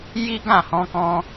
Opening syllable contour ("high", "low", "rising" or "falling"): high